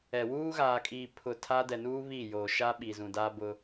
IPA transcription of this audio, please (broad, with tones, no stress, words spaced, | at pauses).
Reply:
ɛ˨ wuː˦ɣaː˨kʼiː˨ pʰʊ˨ tʰa˦ dɛ˨nuː˦ βi˦˨joː˨ ʃa˦ɓi˨ zũ˨daː˦bʊ˦